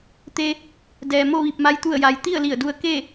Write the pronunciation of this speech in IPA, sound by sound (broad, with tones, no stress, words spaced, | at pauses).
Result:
t̪e˧ | dɛː˩mo˥˨ ʋi˧˩p̚ma˧j t̪u˧˩ə̯ja˩j t̪i˥˨ə̯li˧˩ə̯du˧ə̯ ke˥˨